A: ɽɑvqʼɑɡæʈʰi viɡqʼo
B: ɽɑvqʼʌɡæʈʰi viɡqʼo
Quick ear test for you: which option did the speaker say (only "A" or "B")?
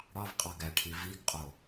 A